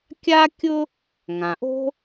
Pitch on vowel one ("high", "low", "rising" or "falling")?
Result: high